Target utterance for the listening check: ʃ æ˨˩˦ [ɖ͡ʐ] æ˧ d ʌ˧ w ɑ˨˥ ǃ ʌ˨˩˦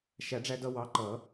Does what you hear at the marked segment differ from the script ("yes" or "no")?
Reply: no